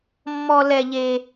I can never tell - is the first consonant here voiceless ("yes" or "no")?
no